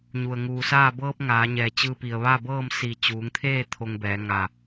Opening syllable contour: low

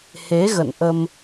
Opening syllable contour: rising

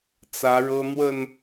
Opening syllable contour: rising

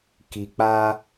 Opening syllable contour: low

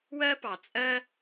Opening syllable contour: high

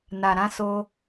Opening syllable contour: low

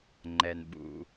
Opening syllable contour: low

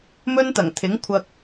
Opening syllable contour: high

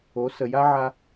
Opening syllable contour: rising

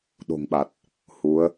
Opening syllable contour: low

